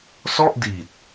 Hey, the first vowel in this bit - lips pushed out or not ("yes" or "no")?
yes